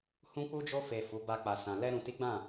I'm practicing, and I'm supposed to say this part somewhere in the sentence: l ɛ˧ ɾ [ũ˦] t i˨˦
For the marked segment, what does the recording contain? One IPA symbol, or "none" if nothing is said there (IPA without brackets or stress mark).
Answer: ũ˨